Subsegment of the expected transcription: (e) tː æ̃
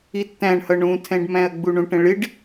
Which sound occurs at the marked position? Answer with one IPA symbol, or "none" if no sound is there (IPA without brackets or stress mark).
i